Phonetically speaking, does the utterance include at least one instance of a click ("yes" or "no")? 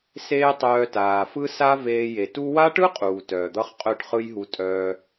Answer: no